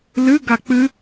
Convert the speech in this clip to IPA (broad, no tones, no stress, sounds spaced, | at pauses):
l ɨ ɡ a k͡p ɨ